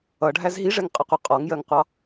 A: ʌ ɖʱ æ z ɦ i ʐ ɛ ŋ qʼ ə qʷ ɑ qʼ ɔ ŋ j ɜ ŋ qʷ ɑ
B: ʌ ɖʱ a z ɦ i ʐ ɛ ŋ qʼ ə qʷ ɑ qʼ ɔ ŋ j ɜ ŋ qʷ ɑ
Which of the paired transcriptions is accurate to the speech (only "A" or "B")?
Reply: A